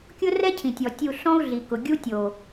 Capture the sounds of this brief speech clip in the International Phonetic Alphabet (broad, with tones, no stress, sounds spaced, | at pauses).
kʲ ʊ˦ r ɛ˦ cʰ ĩ˨ tʲ ɔ˨ tʲ u˨ ɬ ɔ̃˦ u̯ ɮ i˨ k ʊ˨ ɡʲ u˦ tʲ o˨